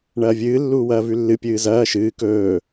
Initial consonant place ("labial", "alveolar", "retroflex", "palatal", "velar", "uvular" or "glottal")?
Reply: retroflex